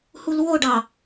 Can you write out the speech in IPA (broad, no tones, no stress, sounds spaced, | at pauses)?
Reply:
h u l w o ɖ ɑ